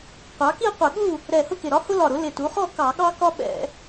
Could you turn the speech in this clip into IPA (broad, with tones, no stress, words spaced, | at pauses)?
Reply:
qʷɑ˩˥ki˥˨qʷɪ˧˩˧ ɠu˥˨ | ɾɛ˧˩ hʊ˥˨kɪ˧˩ɾɒ˦ hʊ˦lɒ˧˩ɾʊ˩˥ lɪ˧˩tu˩˥χɔ˥˨ kɑ˧˩˧ɠɑ˦kɒ˦ ɓɛ̰˧˩˧